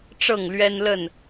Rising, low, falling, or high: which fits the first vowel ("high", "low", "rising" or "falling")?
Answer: falling